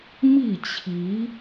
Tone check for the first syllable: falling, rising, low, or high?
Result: falling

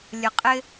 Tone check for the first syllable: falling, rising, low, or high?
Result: low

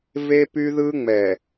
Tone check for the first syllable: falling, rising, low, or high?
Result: high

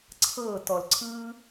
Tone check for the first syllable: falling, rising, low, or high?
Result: falling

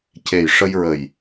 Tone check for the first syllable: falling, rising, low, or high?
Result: low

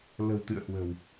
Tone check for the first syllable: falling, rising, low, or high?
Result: low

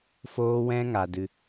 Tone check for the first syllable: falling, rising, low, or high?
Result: high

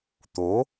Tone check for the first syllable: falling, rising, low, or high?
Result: rising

